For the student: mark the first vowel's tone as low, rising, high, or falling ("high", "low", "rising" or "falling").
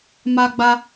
high